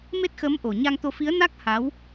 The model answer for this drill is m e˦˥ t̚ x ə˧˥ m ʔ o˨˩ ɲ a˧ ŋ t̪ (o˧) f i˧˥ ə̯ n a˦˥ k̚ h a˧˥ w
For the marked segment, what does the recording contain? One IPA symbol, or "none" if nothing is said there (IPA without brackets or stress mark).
o˧